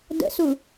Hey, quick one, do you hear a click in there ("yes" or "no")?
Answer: no